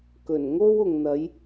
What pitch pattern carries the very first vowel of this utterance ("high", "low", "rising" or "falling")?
low